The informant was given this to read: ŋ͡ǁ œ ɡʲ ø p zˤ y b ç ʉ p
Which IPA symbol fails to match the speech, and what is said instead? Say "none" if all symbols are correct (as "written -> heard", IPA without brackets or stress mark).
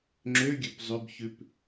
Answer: œ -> ø